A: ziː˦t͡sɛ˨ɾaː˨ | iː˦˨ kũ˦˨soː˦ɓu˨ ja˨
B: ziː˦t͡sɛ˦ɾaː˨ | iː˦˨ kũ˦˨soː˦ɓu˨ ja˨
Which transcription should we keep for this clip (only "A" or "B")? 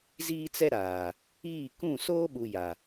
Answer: B